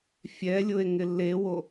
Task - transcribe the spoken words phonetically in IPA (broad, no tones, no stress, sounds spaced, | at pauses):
fʲ ɛ lʲ ʊ e̯ ŋ ɪ lː e w o